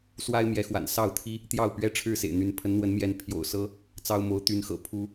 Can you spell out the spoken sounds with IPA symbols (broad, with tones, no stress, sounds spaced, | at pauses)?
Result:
s w a˦ ɪ̯ m j ɛ˨˦ x w a̰˨˩ n s ɑ˥˨ ʊ̯ t̪ʰ i˦ | t̪ j ɑ˥˨ ʊ̯ p ɥ ɛ˦ ʈ͡ʂʰ ɻ̩˥˨ s ḛ˨˩ ɪ̯ n̪ y˨˦ n pʰ ə˨˦ n n̪ w ə˨˦ n m j ɛ˨˦ n pʰ j o̰˨˩ ʊ̯ s ɤ˦ | t͡s ɑ˦ ʊ̯ m o˨˦ ʊ̯ t̪ y˨˦ n x ɤ̰˨˩ pʰ u˨˦